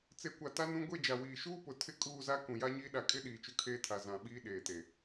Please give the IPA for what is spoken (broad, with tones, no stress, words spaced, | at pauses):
t͡se˨kʷa˨ ta˦nũ˦ ɡʷe˦˨d͡ʒa˨ wiː˨ʃuː˦pʊ˨ tʰɪ˦kʼuː˦˨za˦ kũ˨ja˦ɲiː˦ ɗa˨kʼɪ˦ ɗiː˨t͡ʃʊ˦kʰeː˦tʰa˨ zã˨ɓiː˦ ɗeː˨te˨